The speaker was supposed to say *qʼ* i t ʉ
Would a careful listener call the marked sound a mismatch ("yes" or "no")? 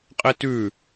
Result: no